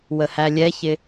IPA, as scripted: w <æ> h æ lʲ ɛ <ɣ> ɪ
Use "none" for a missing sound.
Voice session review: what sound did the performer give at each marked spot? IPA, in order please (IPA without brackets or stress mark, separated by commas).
ə, ç